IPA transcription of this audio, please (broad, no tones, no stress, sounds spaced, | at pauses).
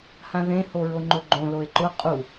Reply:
h ã ð ẽ h o ɹ o ŋ͡ǃ ʊ ɡ͡ǃ õ l o e̯ ǃ ʊ qʼ u